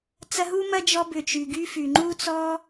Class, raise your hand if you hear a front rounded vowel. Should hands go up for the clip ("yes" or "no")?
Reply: yes